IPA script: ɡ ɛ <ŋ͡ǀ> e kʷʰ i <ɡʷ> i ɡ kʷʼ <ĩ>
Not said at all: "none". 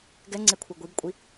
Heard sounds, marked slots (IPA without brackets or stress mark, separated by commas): ŋ͡ǀ, ɡʷ, i